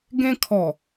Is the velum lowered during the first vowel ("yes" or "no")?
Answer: yes